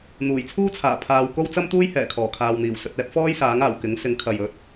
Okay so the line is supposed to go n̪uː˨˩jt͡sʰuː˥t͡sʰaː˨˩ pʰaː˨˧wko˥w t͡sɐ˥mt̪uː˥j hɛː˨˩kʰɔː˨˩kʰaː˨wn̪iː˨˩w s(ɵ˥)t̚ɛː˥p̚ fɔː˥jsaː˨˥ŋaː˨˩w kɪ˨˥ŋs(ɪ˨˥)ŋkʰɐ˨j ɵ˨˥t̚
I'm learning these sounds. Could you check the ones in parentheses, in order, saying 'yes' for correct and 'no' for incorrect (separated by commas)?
no, yes